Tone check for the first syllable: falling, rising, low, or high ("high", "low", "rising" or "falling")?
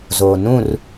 low